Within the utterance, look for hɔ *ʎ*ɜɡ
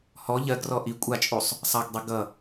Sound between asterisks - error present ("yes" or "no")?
no